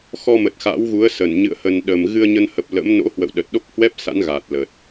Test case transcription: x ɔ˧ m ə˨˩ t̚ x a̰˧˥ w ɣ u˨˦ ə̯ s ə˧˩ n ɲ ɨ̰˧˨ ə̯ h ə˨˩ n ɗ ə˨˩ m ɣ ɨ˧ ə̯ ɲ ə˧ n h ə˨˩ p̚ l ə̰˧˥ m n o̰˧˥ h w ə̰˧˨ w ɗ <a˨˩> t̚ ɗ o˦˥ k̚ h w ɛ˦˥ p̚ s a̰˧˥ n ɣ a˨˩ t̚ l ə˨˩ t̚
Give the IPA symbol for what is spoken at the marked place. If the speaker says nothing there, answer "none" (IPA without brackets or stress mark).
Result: ə˨˩